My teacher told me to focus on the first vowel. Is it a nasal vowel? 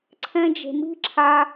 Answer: yes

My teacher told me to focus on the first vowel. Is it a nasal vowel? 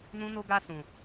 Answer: yes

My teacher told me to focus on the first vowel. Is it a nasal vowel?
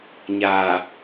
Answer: no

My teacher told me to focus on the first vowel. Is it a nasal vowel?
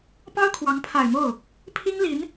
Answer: no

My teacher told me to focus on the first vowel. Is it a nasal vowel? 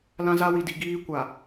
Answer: yes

